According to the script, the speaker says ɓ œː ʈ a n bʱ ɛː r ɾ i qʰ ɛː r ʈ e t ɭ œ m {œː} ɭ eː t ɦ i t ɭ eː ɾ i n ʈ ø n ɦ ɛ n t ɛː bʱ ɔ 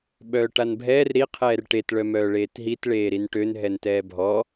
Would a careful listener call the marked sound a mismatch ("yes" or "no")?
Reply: no